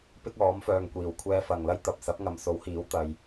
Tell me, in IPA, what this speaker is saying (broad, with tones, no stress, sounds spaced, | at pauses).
p ɪ˥ k̚ ɔː˨˥ m f œː˨ ŋ kʷ iː˨˩ w kʷʰ ɛː˧ f ɐ˨ ŋ l ɐ˥ j t̪ ɐ˨ p̚ s ɐ˨˥ p̚ ŋ ɐ˨ m s o˨˥ w h iː˨˥ w t̪ ɐ˧ j